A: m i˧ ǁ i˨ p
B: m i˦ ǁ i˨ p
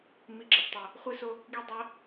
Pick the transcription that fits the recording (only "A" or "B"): A